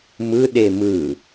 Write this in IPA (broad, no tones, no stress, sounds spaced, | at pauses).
m ɯ ɗ e m ɯ